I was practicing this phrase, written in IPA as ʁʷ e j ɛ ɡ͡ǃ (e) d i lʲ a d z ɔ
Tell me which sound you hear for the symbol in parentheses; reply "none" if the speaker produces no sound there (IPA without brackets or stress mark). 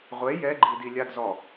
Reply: i